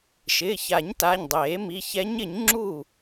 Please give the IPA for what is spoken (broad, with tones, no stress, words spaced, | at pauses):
ʃɪː˩˧˩ça˨˩˦ɲ ta˩˧˩ɲdˤeː˨˩˦mi˩˧˩ çɛ˧˥ɲɪ˨˩˦ɲ ŋ͡ǁu˥˩